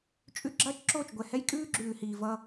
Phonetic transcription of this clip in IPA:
t͡ʃʼ ʉ˦ ɡ͡ǁ ɐː˦ t͡ʃ ǁ oː˦˨ t͡ʃ ɡʷ ɛ˨ h ɛ˦ j kʼ ʉː˦ ɡ͡ǁ ʉː˨ h iː˨ v ʌ˦

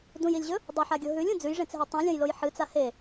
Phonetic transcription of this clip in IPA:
d ũ j i lʲ ʑ ɵ | dˤ u ħ a ɡʲ o ɦ ʉ lʲ ũ d͡z ʉ j ʐ ẽ t͡s ɦ e tˤ ũ lʲ ɐ̃ j l o j ħ ɨ t͡s a h e

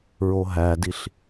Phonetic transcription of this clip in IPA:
ɹ o ɦ æ d i ɬ

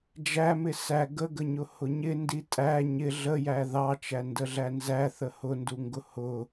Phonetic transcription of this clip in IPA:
d͡ʒ æ m ɪ s æ ɡ ə ɡ ə ɲ ʊ h ʊ ɲ ɪ n d i tʼ æ ɲ ɪ ɮ ə j æ ð ɑ t͡ʃ æ n d ə ɮ æ n z æ θ ə h ʊ n d u ŋ ɡ ʊ h ʊ

